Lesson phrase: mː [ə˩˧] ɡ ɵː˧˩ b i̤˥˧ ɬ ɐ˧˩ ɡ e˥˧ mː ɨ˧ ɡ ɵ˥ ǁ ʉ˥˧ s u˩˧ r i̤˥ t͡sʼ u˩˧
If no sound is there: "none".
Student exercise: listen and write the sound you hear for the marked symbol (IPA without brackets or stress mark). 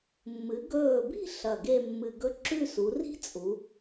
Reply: ɨ˩˧